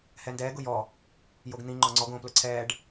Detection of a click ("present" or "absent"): present